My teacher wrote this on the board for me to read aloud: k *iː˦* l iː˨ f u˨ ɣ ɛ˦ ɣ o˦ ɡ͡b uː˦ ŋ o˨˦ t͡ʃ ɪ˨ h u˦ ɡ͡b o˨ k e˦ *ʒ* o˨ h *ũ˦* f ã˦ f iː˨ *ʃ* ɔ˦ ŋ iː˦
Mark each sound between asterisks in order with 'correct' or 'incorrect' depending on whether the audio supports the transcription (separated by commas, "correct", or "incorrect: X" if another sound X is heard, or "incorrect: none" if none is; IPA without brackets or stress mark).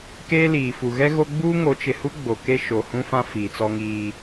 incorrect: eː˦, incorrect: ʃ, correct, incorrect: t͡s